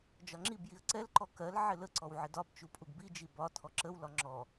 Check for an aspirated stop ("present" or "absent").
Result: present